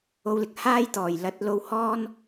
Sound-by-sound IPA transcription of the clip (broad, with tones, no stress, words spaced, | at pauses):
o˧wlɪ˨k̚ haː˥jt̪ɔː˨j lɐ˨˥t̚lo˧w hɔː˥n